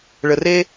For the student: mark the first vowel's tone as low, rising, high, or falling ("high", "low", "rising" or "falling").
low